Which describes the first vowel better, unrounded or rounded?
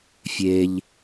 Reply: unrounded